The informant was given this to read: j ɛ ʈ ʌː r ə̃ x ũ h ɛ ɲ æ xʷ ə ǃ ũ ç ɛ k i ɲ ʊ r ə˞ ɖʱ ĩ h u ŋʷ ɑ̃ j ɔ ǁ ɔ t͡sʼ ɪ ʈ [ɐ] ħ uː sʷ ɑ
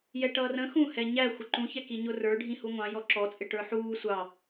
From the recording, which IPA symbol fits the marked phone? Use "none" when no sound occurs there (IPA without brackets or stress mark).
ə˞